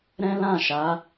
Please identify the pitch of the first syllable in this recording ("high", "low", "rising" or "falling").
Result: high